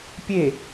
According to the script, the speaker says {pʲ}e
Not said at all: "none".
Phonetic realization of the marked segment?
pʲ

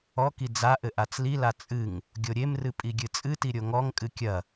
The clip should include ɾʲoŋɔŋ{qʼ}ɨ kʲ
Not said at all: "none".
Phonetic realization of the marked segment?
kʼ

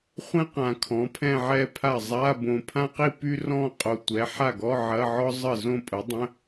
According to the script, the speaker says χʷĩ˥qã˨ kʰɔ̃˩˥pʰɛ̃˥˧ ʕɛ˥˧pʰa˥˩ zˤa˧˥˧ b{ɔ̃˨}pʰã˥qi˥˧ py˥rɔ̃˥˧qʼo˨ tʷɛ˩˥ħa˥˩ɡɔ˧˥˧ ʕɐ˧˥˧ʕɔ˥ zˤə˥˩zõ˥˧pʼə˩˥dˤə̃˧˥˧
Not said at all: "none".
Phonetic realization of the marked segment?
õ˨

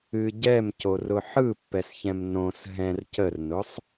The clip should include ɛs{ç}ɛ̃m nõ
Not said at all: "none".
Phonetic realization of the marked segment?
ç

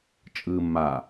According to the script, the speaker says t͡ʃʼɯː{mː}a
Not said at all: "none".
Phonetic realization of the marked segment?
mː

